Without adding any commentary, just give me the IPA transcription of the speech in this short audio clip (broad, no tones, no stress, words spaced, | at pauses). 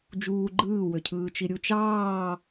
d͡ʒuː ɡ͡ǃɯː wøcʰɯːt͡ʃiɾʲu t͡ʃɑː